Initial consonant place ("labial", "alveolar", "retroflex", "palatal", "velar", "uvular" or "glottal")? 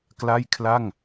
velar